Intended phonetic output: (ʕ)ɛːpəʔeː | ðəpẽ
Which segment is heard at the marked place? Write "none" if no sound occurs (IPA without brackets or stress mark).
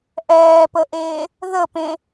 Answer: ʔ